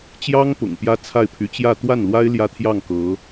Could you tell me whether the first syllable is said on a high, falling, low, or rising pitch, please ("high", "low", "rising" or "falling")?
high